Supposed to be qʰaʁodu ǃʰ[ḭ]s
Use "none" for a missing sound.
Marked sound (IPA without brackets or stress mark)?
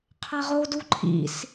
ḭ